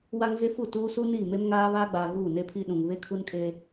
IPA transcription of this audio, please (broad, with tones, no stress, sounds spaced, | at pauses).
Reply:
w a˦ ŋ ɣ e˦ f u˦˨ t uː˦ s u˦ n iː˦˨ m e˦ m ŋ aː˦ β aː˦ ɡ͡b aː˨ ɣ uː˦˨ n e˦ pʰ i˦ ɗ ũ˨ ŋ β e˦ kʰ u˦ n kʼ e˦